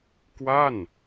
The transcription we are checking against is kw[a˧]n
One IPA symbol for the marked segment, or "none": a˥˩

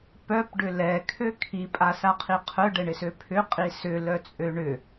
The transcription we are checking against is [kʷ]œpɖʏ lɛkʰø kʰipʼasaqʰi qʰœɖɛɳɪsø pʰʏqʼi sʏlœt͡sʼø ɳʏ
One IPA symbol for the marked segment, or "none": p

